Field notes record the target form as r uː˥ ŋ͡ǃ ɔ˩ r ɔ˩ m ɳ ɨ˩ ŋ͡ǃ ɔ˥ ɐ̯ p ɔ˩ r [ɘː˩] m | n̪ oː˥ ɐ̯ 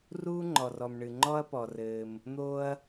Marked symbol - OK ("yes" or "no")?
yes